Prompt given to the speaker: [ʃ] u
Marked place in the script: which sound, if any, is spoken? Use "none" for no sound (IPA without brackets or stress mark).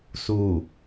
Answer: s